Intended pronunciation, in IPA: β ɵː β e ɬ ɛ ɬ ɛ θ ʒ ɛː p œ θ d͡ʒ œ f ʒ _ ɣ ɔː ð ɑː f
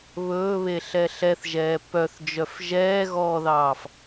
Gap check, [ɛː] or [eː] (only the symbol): ɛː